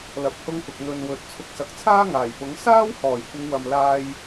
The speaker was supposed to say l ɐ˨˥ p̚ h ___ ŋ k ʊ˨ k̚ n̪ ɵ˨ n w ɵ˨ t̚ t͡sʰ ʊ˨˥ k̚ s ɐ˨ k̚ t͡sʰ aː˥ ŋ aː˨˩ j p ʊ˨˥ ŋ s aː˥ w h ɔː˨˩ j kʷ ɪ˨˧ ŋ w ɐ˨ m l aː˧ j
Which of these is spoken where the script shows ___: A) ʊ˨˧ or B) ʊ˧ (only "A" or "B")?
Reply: B